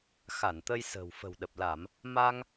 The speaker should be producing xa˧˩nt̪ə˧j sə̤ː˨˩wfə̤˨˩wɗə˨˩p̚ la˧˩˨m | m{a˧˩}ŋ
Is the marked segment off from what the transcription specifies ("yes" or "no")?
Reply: yes